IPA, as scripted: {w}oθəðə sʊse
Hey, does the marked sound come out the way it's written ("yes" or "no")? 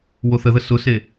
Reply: yes